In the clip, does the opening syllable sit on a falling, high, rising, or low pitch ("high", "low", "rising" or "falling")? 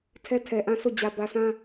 high